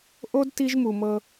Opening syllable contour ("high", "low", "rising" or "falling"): high